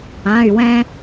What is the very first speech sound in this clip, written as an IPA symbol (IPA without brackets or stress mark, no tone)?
ã